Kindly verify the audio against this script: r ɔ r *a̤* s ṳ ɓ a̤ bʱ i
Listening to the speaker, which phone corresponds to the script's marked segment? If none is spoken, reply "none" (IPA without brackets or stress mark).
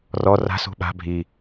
a̤